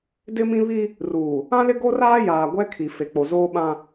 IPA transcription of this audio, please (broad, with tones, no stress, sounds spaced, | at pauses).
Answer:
d ɪ˦ m ĩ˦ β i˦ | r uː˨ | ã˦ l ɪ˦ ɡ o˦ r aː˦ j aː˨ ɡʷ ɛ˦ kʰ i˨ f e˨ k͡p o˨ z oː˦ ɓ ã˦